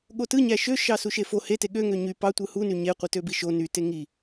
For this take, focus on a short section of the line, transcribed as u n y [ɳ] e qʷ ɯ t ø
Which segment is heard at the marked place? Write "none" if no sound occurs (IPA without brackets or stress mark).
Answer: ɲ